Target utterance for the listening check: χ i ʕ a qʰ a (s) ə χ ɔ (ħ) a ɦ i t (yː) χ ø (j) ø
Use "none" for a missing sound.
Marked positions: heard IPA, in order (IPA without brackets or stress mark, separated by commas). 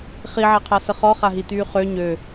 s, χ, yː, ɲ